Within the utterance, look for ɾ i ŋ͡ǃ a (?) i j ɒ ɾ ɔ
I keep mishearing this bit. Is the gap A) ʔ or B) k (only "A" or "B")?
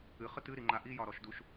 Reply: A